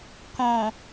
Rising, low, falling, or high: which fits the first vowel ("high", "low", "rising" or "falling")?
low